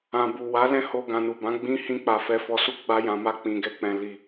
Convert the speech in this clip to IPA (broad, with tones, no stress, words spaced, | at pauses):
ã˨bu˨ wa˨˦lɛ̃˦ ho˧ ɡã˨nu˨ bã˨˦ɡ͡bĩ˦ hĩ˦k͡pa˧ fɛ˧fɔ˧su˦ ɡ͡ba˦jã˧ma˦ k͡pĩ˧ɡɛ˦k͡pɛ̃˧ li˧